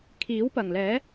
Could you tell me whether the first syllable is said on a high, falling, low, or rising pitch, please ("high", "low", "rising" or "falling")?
rising